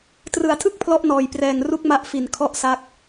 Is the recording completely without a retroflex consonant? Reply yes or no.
yes